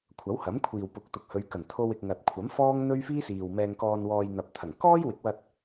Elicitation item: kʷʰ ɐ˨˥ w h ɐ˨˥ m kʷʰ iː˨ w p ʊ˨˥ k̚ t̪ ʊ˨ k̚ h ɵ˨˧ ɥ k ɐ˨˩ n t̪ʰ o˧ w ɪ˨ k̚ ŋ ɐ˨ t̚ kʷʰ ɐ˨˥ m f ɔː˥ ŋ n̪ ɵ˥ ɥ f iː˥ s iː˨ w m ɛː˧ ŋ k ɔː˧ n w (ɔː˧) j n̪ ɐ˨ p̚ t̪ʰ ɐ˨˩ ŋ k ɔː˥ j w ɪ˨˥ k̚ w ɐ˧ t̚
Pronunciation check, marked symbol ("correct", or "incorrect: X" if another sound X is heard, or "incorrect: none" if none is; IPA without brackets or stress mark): correct